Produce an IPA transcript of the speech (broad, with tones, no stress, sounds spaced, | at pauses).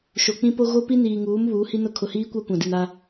ʃ o˨ k͡p ĩ˦ p o˦ ɣ o˦ p i˦ n iː˨ ŋ uː˨˦ m β uː˨˦ h i˦ n ʊ˦ kʰ ʊ˨ h iː˦ kʷ a˦ kʷ ã˨ d i˨ n a˦